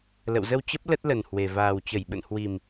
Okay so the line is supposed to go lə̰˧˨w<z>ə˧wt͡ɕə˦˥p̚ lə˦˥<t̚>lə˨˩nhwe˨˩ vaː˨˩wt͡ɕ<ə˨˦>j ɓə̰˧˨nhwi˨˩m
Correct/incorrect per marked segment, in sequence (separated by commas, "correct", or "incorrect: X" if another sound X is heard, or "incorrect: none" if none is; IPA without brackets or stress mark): correct, correct, incorrect: ə˧˩